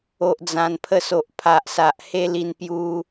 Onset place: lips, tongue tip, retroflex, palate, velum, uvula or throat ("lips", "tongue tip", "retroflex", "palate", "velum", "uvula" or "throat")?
throat